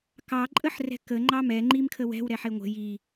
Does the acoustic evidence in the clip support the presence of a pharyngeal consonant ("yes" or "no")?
yes